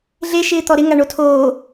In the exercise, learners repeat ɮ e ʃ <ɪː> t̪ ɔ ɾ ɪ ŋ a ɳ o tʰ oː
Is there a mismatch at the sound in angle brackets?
no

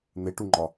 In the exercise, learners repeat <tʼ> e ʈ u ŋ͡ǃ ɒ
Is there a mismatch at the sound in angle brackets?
yes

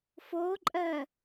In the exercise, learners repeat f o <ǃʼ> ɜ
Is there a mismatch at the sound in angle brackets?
no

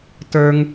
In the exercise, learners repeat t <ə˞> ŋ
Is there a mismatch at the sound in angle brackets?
no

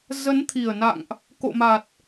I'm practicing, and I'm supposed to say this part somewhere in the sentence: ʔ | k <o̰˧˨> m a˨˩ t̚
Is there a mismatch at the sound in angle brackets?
no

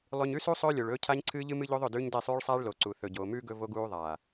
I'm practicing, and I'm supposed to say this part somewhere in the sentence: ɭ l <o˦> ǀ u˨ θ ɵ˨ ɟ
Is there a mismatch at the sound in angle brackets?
yes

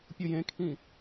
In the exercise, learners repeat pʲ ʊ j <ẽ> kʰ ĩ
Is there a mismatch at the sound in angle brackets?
no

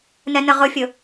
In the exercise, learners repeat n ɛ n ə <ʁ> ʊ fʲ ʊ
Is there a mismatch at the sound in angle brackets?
no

